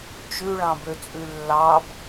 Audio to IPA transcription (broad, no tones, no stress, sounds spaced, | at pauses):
t͡ʃ ʉ ɭ ɑ̃ b ø t͡sʼ ʉ lː ɑ b